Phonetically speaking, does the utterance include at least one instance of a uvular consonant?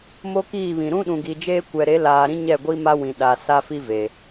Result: no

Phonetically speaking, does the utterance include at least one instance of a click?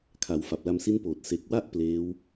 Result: no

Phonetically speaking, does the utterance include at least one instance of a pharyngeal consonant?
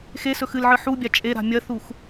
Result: yes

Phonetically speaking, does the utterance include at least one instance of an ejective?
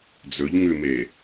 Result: no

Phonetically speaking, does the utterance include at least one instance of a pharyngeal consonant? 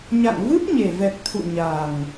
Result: no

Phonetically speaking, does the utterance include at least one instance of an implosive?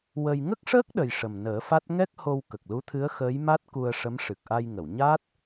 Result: yes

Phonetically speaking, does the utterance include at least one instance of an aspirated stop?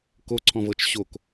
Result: yes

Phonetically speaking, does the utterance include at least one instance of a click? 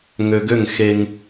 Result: no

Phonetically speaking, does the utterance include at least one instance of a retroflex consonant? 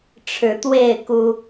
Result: yes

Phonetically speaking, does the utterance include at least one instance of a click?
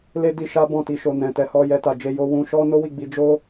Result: no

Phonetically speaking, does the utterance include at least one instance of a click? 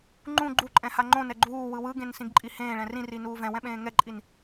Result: yes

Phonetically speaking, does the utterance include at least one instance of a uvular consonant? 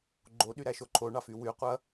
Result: yes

